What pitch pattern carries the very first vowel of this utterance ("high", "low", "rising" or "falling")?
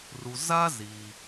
low